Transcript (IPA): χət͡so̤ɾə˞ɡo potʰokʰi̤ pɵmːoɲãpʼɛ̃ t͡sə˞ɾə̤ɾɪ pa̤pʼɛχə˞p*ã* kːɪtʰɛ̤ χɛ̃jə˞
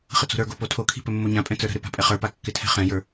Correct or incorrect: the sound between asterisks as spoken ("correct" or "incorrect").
incorrect